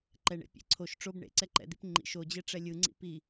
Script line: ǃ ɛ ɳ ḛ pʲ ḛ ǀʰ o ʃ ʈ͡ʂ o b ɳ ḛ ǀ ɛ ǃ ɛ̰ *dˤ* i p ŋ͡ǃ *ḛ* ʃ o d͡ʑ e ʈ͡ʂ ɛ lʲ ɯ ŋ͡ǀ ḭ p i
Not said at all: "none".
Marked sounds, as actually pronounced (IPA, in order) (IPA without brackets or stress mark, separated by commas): d̪, ḭ